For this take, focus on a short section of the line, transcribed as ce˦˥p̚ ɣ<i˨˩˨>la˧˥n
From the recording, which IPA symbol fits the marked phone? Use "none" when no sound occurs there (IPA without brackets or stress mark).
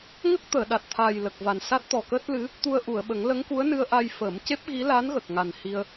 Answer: i˧˥